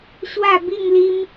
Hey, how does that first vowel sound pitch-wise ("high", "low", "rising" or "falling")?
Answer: falling